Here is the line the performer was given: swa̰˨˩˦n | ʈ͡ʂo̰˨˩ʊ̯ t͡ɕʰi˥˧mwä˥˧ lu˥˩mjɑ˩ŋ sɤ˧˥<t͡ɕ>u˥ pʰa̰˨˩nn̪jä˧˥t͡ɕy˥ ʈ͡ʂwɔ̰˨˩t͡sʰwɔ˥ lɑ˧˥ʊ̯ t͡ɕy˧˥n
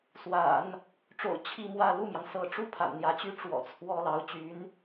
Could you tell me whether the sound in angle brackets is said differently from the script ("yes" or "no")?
yes